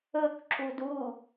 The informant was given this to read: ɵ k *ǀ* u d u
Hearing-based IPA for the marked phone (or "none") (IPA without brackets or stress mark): ǁ